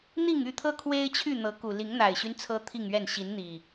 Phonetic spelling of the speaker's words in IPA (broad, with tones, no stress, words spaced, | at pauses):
n̪i˥˨ŋy˥˨t̪ʰɤ˦ kʰwe˦ɪ̯t͡ɕʰy˥˨ n̪ɤ˨˦ku˨˩ li˨˦ŋn̪a˨˩ɪ̯ɕy˦n t͡sʰɤ˦t̪ʰi˥˨ŋɥɛ˥˨n ɕi˨˦nn̪i˨˩